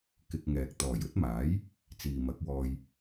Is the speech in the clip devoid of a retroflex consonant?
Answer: yes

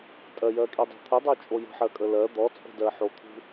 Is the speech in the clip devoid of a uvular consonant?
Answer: yes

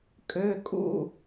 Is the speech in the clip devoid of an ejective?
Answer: no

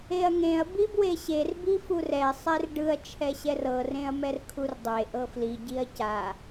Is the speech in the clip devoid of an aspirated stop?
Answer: no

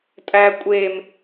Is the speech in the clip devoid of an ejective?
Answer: no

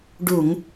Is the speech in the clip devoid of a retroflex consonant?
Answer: no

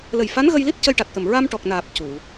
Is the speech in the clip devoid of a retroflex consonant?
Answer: no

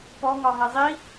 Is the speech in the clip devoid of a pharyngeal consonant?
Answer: yes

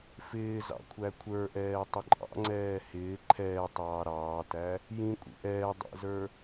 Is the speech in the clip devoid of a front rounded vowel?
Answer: yes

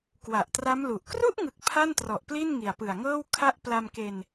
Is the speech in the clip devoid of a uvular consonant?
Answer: yes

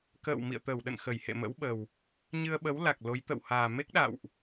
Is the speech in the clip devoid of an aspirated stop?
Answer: yes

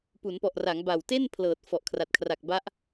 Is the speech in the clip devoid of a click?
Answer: yes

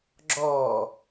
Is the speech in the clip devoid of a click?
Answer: no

